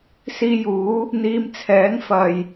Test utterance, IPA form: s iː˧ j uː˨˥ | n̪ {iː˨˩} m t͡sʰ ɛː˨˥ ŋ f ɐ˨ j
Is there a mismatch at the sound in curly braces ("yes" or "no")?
yes